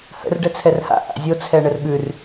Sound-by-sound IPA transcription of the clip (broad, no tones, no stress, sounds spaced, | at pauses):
h ə̰ r ɖ ɛ t͡sʰ ɛ r h a̰ ʔ a̰ zʲ o t͡sʰ ɛ ɳ ə r ɠ ʉ r